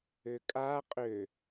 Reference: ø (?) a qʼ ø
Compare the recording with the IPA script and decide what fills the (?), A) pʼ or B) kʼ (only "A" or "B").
B